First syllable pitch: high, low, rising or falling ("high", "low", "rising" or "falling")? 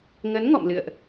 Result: rising